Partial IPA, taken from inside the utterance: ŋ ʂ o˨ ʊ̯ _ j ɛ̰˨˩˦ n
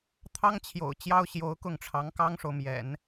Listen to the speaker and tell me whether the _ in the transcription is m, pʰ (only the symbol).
m